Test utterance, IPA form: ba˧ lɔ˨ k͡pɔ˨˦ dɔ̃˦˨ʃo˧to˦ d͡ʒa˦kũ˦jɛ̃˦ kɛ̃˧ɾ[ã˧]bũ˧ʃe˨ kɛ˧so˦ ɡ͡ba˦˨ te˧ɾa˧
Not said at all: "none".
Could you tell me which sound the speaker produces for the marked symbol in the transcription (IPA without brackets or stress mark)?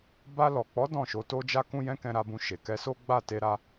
a˧